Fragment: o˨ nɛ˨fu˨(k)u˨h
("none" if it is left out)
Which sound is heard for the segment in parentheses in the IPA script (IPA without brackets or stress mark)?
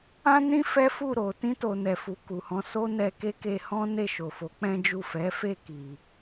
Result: k